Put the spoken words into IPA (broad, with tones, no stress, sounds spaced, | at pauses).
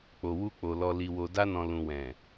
k͡p o˨ w u˧ k͡p o˨ l ɔ˨ l i˨ w o˨ d a˧ n ɔ̃˨ l ũ˨ w ɛ̃˨